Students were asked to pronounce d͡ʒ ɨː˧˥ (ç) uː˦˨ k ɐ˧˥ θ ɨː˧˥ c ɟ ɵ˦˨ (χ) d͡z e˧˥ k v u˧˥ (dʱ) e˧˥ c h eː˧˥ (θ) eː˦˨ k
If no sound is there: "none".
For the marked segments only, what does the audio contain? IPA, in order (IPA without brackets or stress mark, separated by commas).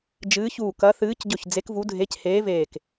ç, ç, dʱ, v